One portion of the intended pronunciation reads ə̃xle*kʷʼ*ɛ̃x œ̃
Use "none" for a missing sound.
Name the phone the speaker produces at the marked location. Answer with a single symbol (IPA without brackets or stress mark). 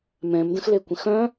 kʷ